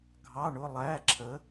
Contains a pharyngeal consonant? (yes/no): no